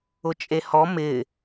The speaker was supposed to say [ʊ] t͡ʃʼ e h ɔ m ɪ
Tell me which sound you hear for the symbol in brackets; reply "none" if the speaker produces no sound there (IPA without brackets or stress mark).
ʊ